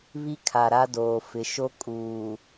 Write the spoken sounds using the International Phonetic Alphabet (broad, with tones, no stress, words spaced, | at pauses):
βi˦kʰa˨ɾa˦doː˨ fɪ˨ʃo˦ kʼuː˨